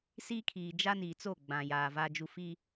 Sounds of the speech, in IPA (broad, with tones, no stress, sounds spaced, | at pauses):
s iː˦ kʰ iː˨ d͡ʒ a˦ n iː˨ t͡s o˦˨ ɡ͡b ã˨ j aː˨ v a˦ d͡ʒ u˦ f i˦